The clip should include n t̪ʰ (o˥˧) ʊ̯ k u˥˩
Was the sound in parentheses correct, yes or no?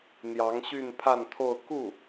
yes